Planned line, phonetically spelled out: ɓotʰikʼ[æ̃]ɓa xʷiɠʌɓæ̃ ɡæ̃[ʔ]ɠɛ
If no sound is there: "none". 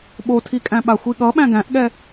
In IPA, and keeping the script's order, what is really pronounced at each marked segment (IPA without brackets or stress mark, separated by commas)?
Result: æ̃, ʔ